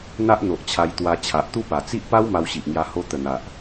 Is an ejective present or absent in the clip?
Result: absent